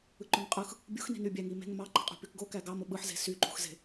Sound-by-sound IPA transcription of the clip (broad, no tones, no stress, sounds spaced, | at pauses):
ɯ ǃ ø ŋ qʼ ɯ x | bʲ ṳ x n i̤ n y bʲ æ ŋ i m e̤ ŋ m ɑ ǃ i̤ qʼ ṳ p y k ɡ o k æ ɡ ɑ m o ɓ ɯ ħ z e̤ s y ǃ ṳ x z e̤